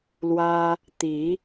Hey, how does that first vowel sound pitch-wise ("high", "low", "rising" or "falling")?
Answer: high